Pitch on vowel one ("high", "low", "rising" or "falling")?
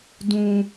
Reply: high